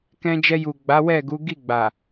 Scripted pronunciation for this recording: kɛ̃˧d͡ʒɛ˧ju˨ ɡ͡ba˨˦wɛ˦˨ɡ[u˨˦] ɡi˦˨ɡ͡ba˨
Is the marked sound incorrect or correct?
correct